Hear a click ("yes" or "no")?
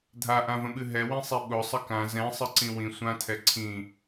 yes